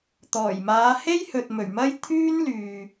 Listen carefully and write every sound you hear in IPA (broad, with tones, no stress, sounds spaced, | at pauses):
t̪ ɔː˨˩ j m aː˨˧ h e˥ j h ɵ˨ t̚ m ɵ˨˩ ɥ m ɐ˥ j t̪ʰ yː˥ n l yː˨